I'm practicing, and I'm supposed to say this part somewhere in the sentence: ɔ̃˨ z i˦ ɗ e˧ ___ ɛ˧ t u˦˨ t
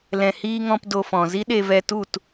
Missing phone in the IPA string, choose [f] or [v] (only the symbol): v